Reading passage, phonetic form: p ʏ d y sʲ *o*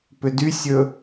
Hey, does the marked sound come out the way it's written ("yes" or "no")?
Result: no